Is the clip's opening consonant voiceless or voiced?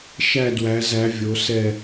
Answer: voiceless